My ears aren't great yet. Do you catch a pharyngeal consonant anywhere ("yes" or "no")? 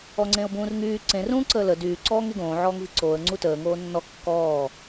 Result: yes